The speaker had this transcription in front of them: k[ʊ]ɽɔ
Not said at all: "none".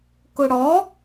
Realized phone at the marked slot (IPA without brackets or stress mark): ʊ